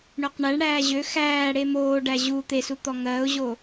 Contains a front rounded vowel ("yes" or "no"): yes